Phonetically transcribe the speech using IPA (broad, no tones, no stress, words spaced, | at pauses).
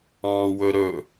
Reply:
ɑ̃ːwɵɾɵ